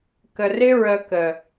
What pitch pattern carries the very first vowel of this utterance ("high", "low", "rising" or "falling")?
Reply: low